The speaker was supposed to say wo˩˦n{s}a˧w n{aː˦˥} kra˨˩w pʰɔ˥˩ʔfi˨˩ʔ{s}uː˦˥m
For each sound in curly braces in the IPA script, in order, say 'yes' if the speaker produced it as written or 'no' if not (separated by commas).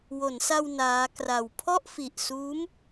yes, yes, yes